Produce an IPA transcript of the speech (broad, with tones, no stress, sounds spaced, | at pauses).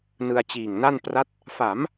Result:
n ɯ˧ a̯ t͡ɕ iː˨˩ ŋ n a˥˩ n p r a˦˥ t̚ | f a˩˦ m